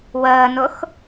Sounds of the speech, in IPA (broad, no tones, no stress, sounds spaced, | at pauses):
w əː n ʊ x